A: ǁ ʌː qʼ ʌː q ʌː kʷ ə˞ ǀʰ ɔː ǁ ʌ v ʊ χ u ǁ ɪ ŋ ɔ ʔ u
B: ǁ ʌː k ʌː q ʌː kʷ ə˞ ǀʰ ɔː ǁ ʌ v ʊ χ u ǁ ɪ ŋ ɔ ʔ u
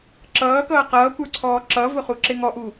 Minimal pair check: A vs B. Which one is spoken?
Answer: B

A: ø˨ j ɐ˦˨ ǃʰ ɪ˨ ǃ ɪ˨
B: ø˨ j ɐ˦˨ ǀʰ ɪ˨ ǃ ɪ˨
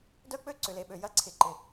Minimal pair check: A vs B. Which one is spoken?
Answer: B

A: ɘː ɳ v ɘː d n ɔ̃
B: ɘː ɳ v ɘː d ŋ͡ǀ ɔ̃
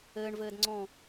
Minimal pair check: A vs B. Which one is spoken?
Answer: B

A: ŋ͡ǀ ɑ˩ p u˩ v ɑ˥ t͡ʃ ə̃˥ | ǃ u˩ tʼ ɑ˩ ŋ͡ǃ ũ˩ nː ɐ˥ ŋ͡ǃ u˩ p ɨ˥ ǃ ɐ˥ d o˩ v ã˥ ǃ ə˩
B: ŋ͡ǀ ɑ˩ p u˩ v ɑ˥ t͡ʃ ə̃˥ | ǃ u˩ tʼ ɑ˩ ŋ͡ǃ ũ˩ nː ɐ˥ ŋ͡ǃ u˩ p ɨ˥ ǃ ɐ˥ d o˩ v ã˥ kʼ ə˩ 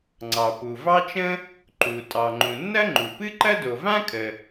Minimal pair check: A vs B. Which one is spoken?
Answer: B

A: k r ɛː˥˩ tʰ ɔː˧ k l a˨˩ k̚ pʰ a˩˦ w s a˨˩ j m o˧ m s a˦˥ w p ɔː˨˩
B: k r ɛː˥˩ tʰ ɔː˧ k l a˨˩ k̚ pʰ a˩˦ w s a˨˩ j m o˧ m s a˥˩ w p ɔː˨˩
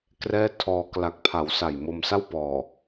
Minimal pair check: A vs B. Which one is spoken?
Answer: B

